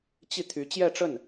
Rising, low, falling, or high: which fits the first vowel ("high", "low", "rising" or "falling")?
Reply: falling